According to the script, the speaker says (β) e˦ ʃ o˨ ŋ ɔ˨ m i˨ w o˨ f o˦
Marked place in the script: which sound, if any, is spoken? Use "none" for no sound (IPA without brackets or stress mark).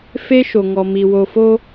f